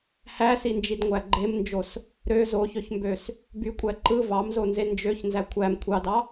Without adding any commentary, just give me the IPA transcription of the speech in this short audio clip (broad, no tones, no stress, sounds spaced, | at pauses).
h æ s i n d͡ʒ i d ŋʷ æ ɡ͡ǃ e m n d͡ʒ o s | ɾ ø z o ç ø ç m b ø s | b y kʷʼ æ ǃ ɯ v ɑ m z o n z e n d͡ʒ ø ç n z æ kʷʰ æ m kʷʰ ɑ d ɑ